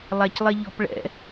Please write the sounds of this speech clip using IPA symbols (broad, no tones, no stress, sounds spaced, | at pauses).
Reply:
lˠ æ c lˠ ɛ ʎ ɔ̤ p ɭ ɛ̰